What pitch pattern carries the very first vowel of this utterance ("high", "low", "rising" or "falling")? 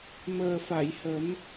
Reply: low